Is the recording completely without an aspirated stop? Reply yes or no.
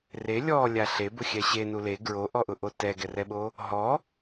yes